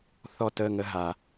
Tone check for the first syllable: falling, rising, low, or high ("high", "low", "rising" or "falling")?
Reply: falling